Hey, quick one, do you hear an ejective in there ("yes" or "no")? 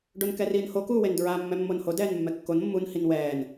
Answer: no